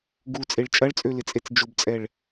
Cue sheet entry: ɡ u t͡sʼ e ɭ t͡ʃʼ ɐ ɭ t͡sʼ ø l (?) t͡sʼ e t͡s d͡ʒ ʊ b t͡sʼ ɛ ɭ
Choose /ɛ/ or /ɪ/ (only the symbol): ɪ